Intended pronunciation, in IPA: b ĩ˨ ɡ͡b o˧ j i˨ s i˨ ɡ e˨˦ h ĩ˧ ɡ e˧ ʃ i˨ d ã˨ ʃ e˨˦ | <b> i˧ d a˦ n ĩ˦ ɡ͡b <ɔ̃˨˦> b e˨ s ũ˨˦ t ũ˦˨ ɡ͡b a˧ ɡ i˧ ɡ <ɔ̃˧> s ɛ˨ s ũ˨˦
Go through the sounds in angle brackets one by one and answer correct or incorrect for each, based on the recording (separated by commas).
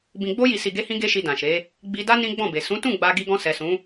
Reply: incorrect, incorrect, correct